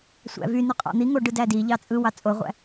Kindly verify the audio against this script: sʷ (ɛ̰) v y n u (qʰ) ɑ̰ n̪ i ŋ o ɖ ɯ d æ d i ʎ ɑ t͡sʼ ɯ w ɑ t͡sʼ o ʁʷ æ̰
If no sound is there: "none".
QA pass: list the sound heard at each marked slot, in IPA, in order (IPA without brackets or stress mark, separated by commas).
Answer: æ̰, qʼ